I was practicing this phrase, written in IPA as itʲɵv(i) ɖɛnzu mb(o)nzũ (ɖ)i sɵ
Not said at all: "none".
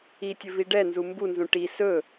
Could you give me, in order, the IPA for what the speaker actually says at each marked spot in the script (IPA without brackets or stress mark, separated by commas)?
i, u, ʈ